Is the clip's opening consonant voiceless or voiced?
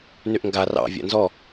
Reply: voiced